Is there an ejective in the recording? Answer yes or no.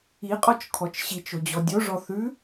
yes